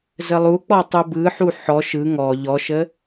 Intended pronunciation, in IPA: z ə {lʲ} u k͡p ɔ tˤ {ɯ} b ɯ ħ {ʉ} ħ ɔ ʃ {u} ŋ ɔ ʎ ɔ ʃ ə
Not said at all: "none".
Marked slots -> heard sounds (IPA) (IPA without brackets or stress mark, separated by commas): lˠ, u, u, ɯ